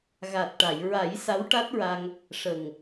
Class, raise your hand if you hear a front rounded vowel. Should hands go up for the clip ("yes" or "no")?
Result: no